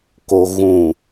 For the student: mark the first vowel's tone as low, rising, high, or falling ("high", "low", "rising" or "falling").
low